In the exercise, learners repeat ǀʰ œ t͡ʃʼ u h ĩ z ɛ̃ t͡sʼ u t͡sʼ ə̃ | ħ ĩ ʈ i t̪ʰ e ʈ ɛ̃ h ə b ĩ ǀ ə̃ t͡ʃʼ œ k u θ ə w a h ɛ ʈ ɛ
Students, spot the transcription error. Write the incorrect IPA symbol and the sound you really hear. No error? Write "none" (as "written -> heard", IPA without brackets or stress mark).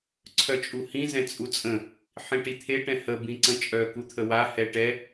θ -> t̪ʰ